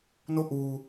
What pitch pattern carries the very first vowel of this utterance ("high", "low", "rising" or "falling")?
falling